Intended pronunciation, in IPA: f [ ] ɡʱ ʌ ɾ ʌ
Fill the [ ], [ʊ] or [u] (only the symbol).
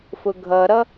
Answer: ʊ